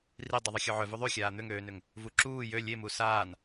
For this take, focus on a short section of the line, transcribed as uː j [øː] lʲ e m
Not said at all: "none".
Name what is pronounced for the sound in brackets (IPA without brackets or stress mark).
ø